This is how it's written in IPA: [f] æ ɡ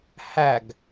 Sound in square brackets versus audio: incorrect: h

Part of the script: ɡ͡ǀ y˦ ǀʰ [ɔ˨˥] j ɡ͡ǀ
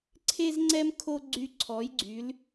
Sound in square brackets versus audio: correct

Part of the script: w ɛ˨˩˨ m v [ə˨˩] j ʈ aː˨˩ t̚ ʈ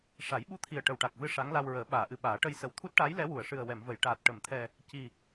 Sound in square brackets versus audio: incorrect: ə˨˩˨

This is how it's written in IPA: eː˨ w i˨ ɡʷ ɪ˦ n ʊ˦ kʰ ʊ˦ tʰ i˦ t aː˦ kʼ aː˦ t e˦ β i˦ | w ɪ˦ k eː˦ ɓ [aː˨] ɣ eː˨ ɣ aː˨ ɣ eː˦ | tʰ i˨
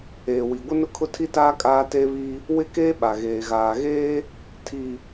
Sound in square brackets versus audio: incorrect: a˨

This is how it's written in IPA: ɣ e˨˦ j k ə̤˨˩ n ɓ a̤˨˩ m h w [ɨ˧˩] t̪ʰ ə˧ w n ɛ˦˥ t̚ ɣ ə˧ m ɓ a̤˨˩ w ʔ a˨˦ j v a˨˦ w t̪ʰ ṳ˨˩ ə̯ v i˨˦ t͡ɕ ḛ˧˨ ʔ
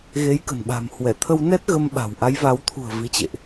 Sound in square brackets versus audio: incorrect: ɛ˧˩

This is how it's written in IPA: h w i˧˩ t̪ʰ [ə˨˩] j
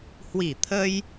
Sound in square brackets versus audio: incorrect: ə˧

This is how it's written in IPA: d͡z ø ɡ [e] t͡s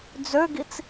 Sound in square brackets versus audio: incorrect: i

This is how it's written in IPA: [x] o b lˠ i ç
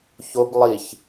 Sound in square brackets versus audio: incorrect: ç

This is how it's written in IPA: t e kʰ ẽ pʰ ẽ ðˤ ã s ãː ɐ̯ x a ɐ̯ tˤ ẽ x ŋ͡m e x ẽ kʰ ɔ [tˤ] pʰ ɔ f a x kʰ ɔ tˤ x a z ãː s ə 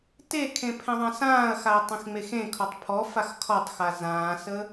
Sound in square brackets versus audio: correct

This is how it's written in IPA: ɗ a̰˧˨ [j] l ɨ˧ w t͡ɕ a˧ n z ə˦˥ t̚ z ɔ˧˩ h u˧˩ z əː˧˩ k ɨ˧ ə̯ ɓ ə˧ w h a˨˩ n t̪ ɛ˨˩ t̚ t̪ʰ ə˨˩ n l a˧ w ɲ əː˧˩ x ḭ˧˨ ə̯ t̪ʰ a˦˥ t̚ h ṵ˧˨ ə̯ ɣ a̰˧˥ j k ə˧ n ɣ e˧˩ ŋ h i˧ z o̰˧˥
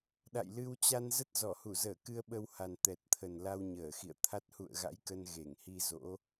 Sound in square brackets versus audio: correct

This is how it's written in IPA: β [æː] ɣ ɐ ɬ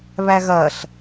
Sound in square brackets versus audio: incorrect: æ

